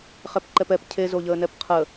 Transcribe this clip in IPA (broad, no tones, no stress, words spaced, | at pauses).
χɛpǃɛpɛp cʰezoʎəːnɛp qʰə